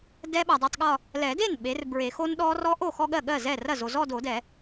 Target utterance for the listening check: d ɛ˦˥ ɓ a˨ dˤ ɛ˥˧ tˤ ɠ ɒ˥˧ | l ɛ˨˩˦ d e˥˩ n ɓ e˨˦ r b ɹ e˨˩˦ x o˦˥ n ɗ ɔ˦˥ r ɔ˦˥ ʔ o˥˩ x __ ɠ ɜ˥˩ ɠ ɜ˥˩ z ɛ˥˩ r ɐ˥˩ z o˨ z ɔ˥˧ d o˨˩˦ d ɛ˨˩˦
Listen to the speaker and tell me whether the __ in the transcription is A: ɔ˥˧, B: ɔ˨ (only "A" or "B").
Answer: A